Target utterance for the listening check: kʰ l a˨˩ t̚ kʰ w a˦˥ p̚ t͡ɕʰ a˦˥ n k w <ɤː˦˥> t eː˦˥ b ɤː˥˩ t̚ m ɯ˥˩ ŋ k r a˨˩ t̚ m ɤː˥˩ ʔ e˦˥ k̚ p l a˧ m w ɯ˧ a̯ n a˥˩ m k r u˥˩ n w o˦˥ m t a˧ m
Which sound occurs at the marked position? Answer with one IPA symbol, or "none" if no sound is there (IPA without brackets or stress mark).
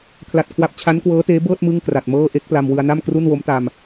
ɤː˦˥